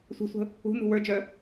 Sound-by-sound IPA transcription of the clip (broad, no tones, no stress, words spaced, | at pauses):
sʷə̤sʷə̤ | ṳnṳ wə˞d͡ʒœ